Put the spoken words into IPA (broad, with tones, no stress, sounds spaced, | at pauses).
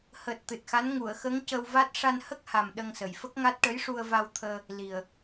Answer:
h əː˨˩ t̚ t̪ ɨ˨˩ t̚ x a˧˥ n ŋ u˨˩˨ ə̯ x ə˧˥ ŋ c ə˧ w v a˦˥ t̚ ʂ a˧ n h ə˦˥ k̚ h a˨˩ m ɗ ə˧ ŋ s ə˨˩ j f ə˦˥ k̚ ŋ a˦˥ t̚ ʈ ə˧˥ j ʂ u˧ ə̯ v a˧ w t̪ʰ əː˧ | l i˨˩ ə̯